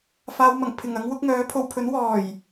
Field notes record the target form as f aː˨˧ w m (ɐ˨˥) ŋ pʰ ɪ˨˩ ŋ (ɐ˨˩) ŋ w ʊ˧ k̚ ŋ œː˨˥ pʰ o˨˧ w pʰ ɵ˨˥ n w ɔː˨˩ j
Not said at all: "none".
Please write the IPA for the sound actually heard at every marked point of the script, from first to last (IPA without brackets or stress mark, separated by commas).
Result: ɐ˨˩, ɐ˨˧